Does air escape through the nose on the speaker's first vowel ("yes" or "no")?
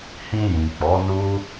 yes